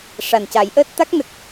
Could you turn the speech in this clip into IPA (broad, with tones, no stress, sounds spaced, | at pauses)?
ʂ a˨˩ n c a˨˩˦ j ʔ əː˦˥ t̚ t̪ a˦˥ k̚ n ə˨˩ k̚